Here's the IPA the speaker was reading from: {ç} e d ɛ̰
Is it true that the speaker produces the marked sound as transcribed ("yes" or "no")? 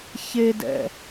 yes